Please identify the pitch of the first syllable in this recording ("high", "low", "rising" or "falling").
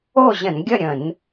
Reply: falling